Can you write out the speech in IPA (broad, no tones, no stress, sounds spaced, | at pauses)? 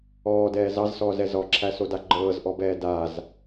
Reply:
ɔː d ɛː z ɑ z s ɔː z ɛ z ɔ ǁʰ æ s o d a ɡ͡ǃ ɤː z ʔ ɔ b ɛː d a z